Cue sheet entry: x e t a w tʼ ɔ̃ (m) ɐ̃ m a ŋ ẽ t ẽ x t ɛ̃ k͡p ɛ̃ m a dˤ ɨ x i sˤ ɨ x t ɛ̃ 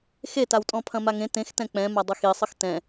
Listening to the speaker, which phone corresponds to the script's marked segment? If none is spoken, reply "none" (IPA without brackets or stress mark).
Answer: pʰ